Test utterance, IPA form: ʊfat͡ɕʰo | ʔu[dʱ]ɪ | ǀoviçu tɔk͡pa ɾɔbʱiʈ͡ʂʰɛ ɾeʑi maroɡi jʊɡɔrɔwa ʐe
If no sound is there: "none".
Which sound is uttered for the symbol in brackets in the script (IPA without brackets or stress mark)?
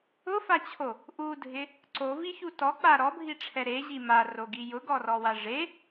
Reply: dʱ